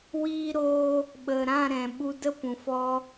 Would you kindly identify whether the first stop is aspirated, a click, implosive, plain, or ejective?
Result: implosive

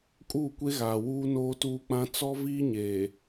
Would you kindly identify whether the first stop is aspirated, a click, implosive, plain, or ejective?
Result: ejective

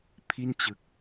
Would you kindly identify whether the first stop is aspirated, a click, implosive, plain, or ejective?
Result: aspirated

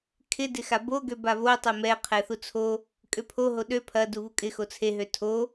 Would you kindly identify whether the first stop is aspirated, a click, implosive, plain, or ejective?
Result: aspirated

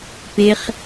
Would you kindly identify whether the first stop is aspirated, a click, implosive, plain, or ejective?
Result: plain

